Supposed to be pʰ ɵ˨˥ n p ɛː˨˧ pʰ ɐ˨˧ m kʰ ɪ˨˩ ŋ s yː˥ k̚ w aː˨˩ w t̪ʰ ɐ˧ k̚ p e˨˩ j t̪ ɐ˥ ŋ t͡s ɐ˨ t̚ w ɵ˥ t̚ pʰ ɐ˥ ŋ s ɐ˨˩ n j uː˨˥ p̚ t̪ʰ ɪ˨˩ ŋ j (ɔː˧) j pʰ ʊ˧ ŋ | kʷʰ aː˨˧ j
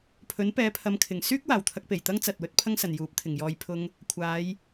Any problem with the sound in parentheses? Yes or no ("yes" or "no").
no